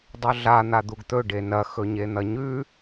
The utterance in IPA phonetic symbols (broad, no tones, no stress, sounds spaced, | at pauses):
dˤ ɵ ɮ a n̪ a d̪ u ɡ t̪ ɵ ɖ e n ɐ x ɵ ɲ e n̪ ɐ ɲ ʉ